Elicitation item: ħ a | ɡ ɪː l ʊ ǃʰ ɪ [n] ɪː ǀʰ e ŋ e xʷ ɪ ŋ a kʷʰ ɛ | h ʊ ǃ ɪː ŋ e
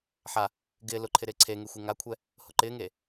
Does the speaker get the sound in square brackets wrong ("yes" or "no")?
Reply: yes